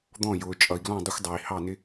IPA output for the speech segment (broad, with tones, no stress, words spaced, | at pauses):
d̪ɔ̃˦˨ jʊː˨ t͡ʃʼʌ˨i̯ɡlɔ̃˦˨dˤʊ˦xʷdˤɑ˨i̯ hɑ˦˨nɪ˦